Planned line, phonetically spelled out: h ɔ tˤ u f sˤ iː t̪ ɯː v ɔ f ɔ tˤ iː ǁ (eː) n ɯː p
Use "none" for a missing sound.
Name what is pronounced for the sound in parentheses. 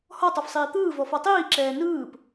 ɛː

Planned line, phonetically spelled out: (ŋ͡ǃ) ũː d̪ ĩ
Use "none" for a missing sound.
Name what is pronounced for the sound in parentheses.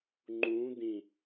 ŋ͡ǃ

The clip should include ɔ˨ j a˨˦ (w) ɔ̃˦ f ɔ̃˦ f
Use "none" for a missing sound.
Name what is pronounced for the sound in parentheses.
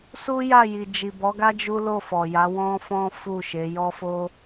w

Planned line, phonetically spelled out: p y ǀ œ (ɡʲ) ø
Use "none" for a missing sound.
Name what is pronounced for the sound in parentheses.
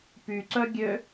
ɡʲ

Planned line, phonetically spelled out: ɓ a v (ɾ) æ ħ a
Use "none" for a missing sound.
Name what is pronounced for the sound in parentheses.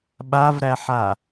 ɾ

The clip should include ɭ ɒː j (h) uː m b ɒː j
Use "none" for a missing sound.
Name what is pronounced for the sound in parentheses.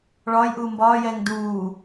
ʔ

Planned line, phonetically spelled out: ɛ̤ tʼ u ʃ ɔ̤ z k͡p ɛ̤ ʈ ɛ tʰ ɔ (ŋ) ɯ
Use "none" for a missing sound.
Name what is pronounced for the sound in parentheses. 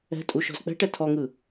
ŋ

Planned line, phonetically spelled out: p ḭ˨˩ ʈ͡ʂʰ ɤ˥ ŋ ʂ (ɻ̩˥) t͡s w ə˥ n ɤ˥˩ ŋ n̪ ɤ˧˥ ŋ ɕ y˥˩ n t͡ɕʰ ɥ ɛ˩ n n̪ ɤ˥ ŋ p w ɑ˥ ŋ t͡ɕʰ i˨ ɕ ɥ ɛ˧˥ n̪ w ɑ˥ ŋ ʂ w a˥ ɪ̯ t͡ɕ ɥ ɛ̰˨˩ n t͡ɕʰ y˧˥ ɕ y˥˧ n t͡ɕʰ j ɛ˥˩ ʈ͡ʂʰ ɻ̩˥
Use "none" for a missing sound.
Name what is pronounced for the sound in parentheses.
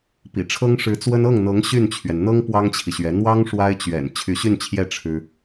ɻ̩˧˥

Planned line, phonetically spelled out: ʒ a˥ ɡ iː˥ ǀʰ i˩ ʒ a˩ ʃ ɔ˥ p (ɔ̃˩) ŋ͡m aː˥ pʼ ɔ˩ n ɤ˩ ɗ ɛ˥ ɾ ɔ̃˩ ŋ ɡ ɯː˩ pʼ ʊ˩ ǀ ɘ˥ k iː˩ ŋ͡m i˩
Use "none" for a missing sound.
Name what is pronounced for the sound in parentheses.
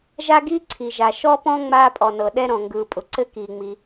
ɔ̃˥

